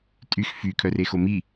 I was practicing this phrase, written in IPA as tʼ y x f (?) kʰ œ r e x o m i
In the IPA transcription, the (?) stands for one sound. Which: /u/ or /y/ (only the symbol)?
y